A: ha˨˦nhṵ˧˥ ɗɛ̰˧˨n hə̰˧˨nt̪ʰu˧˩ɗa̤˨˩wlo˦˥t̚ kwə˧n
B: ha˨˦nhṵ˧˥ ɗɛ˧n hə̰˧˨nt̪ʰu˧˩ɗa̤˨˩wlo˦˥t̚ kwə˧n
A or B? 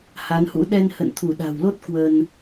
B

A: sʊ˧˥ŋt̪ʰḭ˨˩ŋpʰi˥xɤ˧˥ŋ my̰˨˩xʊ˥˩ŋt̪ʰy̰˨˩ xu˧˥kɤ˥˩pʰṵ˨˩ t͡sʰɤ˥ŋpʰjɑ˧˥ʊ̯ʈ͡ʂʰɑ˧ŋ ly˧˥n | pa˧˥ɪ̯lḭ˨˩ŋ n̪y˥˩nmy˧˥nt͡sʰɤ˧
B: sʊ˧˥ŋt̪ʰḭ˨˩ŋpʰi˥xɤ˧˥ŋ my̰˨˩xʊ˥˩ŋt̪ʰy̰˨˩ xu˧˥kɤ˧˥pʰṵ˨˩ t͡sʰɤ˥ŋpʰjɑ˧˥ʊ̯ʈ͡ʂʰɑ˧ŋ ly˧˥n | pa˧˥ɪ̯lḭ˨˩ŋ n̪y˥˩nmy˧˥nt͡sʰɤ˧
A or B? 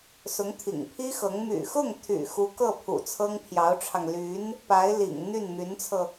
A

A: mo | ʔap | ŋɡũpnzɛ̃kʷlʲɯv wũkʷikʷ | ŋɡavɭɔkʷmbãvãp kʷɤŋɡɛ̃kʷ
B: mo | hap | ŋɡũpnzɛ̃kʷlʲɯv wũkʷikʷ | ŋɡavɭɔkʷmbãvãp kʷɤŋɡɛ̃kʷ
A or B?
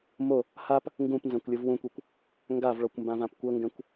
B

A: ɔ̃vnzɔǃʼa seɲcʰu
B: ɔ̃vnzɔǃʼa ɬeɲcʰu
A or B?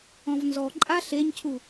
B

